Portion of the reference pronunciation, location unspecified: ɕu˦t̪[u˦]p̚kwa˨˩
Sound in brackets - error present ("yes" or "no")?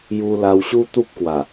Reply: no